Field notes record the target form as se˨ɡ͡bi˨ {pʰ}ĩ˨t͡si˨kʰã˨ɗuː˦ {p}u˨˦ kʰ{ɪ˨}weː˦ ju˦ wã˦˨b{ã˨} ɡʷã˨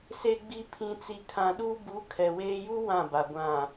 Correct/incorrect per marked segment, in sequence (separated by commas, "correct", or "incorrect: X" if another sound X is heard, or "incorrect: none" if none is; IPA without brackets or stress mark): correct, incorrect: b, incorrect: ɛ˨, incorrect: a˨